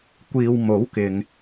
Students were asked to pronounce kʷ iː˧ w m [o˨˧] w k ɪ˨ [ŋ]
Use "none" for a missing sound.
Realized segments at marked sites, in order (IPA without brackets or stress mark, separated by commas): o˨˥, ŋ